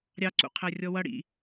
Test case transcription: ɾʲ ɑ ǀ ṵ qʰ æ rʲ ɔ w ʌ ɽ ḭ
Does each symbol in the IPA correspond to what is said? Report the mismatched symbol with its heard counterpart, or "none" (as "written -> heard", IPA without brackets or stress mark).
none